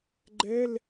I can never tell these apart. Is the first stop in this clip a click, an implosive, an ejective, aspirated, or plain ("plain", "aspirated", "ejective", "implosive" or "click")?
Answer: click